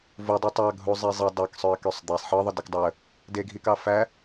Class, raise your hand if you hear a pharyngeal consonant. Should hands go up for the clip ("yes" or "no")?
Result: yes